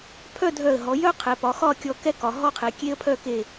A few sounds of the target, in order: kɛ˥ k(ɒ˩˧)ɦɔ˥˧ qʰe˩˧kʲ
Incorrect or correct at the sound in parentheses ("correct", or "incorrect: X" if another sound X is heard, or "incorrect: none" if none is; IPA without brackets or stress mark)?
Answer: correct